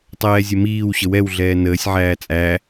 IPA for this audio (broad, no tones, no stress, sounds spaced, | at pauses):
tˤ ɛː zʲ ə m iː w ɕ ə w ɛ w ɮ ɛː n əː sʲ ʕ æː t͡sʼ æ